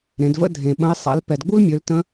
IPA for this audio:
ɾ ẽ˩˧ d v ə̰˥ dʱ ẽ˩ ɓ ə̃˧˥ ɪ̯ sˤ a̰˩˧ l p ɛ˩ d ɡ͡b u˥ l mʲ ø˩˧ l t ə̃˧˥

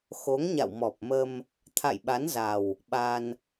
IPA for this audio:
x o˨˦ ŋ ɲ a̰˧˨ w m ɔ˨˩ p̚ m ə˧ m | t̪ʰ a̰˧˨ j ɓ a˨˦ n z a˨˩ w | ɓ a˧ n

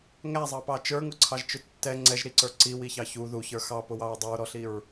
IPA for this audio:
ŋ æ zˤ ɑ p ɑ t͡ʃ ə˞ ŋ ʊ ǀʰ ɑ ʒ t͡ʃ ʊ tː ɛ ŋ͡ǀ ɛ ʒ ɾ i ǀ ə˞ ǀ i w i ç ɑ ç u ð u ç ə˞ x ɑ p ʊ w ɑ ɹ dˤ u ɹ ɾ ɔ ɬ i ɹ

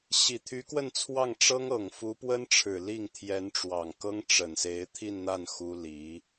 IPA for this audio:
ɕ i˨˩ t̪ʰ y˧˥ k w ə˥˧ n t͡sʰ w ɑ˥˩ ŋ ʈ͡ʂ ɤ˥ ŋ ɤ˨˩ ŋ f u˧˥ p w ə˥ n ʈ͡ʂʰ ɻ̩˨˩ l i˥˩ ŋ t̪ʰ j ɛ˧˥ n ʈ͡ʂ w ɑ˨˩ ŋ k ɤ˥ ŋ ʈ͡ʂ ə˨˩ n s e˧˥ ɪ̯ t̪ʰ i˥˧ n n̪ a˥˩ n x u˥ l i˧˥

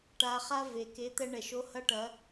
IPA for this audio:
ʈ a˧ χ a˦ v e˨ k e˨˦ t̪ ɛ˧ ɳ ɛ˨ ʃ o˧ h ɐ˦ ʈ ɐ˨˦

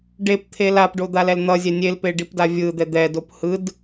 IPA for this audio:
ɖ e p t̪ʰ e l a p ɖ o d̪ a l ɛ l n̪ ʌ zʲ ɛ nʲ e l p e ɖ i p d a vʲ ɯ d̪ ɛ d̪ ɛ d o p h ɯ d

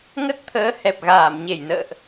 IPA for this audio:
ŋ ə˦˥ t̚ t̪ʰ əː˨˦ h ɛ˨˩ p̚ ɣ aː˧˩ m ɲ e˧˩ j n ə̰ː˧˨ ʔ

